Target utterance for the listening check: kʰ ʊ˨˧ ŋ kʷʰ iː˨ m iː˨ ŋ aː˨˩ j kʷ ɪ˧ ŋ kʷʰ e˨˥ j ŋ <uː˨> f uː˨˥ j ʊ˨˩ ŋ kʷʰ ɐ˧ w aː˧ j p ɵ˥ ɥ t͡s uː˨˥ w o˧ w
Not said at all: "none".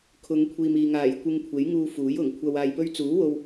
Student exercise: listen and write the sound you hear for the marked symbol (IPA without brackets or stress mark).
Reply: uː˧